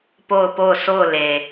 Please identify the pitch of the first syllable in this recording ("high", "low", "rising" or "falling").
falling